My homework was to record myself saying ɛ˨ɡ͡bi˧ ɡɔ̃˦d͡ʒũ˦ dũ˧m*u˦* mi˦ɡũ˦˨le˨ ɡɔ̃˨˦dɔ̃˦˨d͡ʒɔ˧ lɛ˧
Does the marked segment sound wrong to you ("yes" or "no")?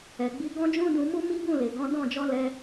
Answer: no